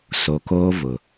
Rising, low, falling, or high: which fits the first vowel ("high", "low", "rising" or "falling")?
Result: low